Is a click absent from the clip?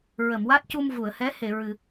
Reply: yes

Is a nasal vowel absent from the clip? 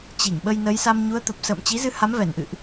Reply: yes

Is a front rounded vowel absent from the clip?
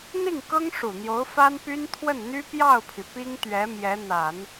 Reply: no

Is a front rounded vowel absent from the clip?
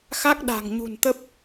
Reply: yes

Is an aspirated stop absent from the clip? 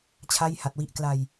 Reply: no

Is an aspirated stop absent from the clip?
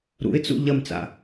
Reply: yes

